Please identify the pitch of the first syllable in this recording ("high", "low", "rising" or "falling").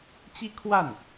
high